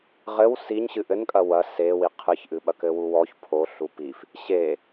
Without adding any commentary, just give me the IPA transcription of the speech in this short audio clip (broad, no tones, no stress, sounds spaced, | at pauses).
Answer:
ʁ ɘ w s i ɲ ɕ ɨ ʔ ɘ n kʼ ɐ w ɐ s e w i qʰ ɨ ç ʔ ɨ ɓ ɐ k ɘ w u w ɔ ç pʰ o ɬ u p i f | ɕ e